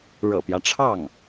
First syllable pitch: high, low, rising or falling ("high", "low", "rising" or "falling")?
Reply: low